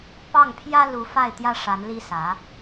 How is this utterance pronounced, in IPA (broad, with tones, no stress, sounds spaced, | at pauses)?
p ɑ˥˩ ŋ pʰ j ä˥ l u˧˥ f a˥˩ ɪ̯ t̪ j ä˥ ʂ a˧˥ n l i˥ s ä˧˥